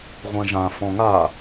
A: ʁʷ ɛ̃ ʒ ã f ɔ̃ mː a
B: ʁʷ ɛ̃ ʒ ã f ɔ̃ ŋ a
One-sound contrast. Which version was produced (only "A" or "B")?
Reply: B